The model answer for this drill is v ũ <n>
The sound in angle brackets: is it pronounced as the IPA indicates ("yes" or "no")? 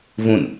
yes